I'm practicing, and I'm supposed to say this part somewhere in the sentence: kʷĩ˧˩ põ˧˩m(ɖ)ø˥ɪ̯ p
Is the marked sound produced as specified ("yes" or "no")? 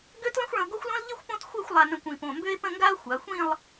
no